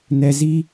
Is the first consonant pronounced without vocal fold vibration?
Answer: no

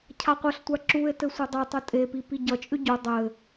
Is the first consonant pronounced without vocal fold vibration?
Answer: yes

